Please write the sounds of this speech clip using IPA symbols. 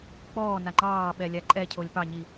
k͡p ɔː n a ŋ͡ǃ ɑː ɓ ɛ lʲ a ǃʼ ɛ cʰ o lʲ p ɑ ɲ i

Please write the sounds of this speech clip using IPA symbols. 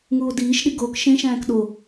ŋ uː o̯ d iː ʃ ɗ i ɡ oː k ʃ ẽ ʃ æ̃ː k ɗ o

